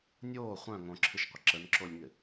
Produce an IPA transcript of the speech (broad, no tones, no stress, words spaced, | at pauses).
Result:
nʲoː χʷœ̃ ŋõǁʰɨʃqʷə ǁənǁolʲŋɪ